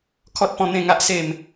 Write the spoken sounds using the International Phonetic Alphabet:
kʰɔ˦t̚pɔ̃˥˧n̪ẽ˥˧ŋa˦ʔ se˥˧m

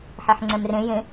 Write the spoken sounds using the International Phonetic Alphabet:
ħeħŋ͡ǀɛ̃mrẽ jẽ

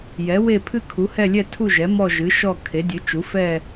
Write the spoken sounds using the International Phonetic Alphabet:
jɛ˩˥we˥˧ pʰɨ˥˧kʰu˩˥hɛ˥˧ lʲɛ˥˧tʰu˥˧ʒɛ˩˥ mɔ˥˧ʒɨ˩˥ʃɔ˥˧ kʰe˩˥dʲɨ˩˥ t͡ʃu˩˥fɛ˥˧

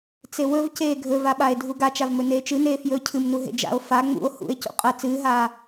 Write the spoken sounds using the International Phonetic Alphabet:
t͡sewɵvceː ɡʱɵvaɓae̯ dʱuɡat͡ʃavmɵ neːt͡ʃɨneː fjɵ cʰɨmnu ɦḛd͡ʒa̰o̯ fa ŋ͡mṵo̯ hṵe̯ cṵqʼɐ t͡sɨːɦaː

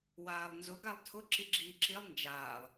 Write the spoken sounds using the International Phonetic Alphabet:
waːlˠnzʊ ɡalˠtʰʊ ǁiɡ͡ǁiːǁilˠ nd͡ʒaːlˠ

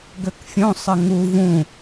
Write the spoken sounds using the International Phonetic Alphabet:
ɡøkfʲõ sˤɘŋu vũ

